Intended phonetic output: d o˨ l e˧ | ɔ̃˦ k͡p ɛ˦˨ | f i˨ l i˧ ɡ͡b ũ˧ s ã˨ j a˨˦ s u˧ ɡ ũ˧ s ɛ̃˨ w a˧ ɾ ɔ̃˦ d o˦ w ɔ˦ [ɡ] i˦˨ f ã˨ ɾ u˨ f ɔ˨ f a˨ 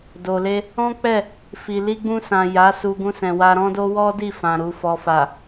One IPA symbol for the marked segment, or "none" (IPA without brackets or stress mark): d